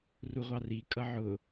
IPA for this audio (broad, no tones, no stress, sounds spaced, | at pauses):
r u ʁʷ ɑ r i kʼ ʌ ʕ ʊ